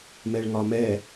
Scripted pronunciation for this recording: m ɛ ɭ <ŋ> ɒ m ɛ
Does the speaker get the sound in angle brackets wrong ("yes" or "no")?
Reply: no